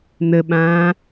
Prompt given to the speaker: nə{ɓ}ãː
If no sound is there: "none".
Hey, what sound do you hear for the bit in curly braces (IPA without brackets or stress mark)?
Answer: ɓ